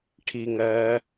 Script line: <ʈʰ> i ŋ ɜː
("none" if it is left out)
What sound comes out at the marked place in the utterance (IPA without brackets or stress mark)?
ʈʰ